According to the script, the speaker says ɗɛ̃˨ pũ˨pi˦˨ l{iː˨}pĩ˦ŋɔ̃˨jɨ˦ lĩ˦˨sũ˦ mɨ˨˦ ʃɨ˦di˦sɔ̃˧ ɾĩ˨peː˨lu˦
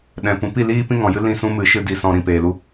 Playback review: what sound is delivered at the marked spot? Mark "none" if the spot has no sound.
iː˦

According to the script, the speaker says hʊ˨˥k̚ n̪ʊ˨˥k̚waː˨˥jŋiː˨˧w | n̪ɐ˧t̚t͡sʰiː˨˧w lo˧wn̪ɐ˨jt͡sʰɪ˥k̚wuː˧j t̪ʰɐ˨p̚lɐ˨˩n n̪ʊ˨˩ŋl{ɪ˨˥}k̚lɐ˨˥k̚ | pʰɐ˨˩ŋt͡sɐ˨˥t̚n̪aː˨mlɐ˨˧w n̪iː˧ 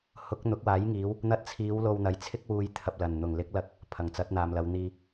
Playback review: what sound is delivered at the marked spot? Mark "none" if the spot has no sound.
ɪ˨˥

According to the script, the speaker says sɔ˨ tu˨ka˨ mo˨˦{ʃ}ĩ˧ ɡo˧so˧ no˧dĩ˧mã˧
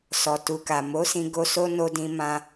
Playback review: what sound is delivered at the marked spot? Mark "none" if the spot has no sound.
s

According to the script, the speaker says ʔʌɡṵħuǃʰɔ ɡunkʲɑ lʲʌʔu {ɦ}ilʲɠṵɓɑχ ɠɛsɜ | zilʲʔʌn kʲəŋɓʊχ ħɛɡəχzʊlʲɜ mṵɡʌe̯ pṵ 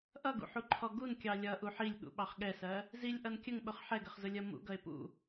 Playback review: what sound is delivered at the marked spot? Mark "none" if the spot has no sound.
ħ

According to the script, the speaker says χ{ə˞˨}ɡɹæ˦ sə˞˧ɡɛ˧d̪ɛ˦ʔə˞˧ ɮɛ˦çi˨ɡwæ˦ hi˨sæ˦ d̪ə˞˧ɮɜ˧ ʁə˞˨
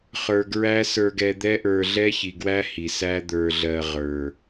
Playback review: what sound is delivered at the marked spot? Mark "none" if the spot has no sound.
ə˞˨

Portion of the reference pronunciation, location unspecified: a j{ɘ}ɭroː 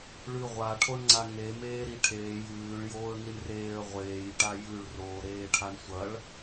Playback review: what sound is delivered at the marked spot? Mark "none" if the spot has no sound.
ʉ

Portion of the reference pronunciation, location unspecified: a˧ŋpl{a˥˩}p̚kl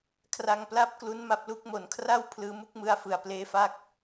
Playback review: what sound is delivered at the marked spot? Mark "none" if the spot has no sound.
a˥˩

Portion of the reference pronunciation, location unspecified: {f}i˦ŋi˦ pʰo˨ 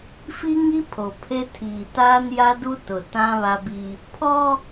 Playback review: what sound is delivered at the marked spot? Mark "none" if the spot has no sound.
f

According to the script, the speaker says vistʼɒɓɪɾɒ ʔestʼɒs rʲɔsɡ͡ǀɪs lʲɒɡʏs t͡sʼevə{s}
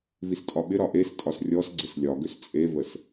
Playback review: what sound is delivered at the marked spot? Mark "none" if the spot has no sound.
s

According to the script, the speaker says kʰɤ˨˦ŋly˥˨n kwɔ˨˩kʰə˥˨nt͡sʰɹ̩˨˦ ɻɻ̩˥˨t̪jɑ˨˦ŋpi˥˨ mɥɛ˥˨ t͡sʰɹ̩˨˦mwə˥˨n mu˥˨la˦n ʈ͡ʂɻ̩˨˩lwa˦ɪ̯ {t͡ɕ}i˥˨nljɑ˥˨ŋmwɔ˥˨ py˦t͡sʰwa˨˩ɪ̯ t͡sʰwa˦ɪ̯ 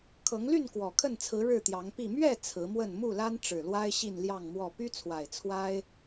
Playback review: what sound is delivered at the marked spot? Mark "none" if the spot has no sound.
ɕ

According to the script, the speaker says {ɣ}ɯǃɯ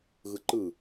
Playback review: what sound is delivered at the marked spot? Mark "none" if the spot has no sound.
ɣ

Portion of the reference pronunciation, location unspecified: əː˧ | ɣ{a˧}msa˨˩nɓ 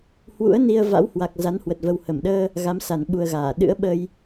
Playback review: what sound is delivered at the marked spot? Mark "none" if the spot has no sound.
a˨˦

